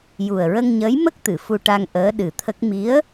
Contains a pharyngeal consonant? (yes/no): no